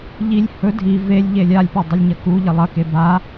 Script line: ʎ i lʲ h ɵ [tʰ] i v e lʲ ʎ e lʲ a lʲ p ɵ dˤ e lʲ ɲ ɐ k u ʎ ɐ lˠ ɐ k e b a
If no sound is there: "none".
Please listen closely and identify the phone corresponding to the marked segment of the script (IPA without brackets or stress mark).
dʱ